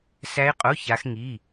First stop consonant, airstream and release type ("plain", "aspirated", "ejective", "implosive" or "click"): ejective